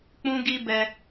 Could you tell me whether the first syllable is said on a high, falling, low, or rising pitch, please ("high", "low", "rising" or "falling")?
high